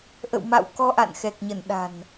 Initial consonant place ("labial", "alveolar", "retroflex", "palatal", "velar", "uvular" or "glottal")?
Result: glottal